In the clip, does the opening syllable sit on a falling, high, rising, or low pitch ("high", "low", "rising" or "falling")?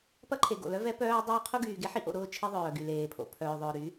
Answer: high